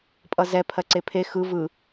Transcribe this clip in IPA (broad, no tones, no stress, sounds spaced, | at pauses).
pʼ ʌ z ɛ pʰ ɜ ǀ e pʰ e x ɯ v ɯ